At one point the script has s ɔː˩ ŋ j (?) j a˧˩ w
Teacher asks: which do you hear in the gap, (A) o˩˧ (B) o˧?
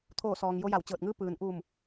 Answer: B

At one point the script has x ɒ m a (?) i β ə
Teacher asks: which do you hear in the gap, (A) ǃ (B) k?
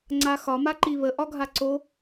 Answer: A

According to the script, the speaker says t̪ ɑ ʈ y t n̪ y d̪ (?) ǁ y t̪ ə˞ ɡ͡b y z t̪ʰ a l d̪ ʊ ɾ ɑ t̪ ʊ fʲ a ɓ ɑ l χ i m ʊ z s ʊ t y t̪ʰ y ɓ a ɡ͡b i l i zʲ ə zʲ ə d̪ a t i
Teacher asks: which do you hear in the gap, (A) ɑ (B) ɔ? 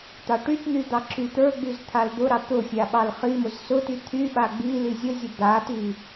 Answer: A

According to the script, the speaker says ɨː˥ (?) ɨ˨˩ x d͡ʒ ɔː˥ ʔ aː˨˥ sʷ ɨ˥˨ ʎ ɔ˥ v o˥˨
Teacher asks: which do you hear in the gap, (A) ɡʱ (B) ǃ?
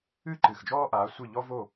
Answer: B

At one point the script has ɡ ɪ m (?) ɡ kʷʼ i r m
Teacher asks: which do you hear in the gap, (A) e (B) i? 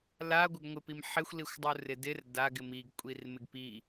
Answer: B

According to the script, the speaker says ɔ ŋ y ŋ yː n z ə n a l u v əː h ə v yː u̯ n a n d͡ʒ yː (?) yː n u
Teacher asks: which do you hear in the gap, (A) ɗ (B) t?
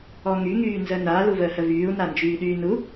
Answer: A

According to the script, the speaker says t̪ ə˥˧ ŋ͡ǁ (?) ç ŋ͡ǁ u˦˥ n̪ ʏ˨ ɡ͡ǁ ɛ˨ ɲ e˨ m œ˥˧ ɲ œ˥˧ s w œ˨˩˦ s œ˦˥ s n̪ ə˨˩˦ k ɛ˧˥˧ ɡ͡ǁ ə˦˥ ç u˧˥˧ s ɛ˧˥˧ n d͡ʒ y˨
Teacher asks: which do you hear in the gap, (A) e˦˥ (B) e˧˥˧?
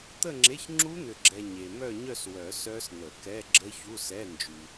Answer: B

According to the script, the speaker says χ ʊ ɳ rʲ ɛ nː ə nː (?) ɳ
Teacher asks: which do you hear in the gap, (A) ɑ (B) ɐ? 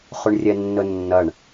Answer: B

